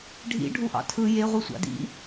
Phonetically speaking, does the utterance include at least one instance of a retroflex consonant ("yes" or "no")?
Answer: yes